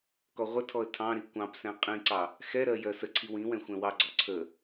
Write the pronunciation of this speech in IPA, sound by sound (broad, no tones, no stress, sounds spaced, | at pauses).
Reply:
k ɔ ʁʷ ə tʰ ɔ ə̯ tʰ ɑ̃ ɾ i kʷ ɑ̃ p s ɛ̃ qʼ ĩ ǀ ɑ | x ɛ ɾ ɜ j ɜ s ə ǀʰ i w ĩ w ɛ̃ xʷ ɛ̃ w ɑ ɡ͡ǀ ɔ ǀʰ ə